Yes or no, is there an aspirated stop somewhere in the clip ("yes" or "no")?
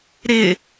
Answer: no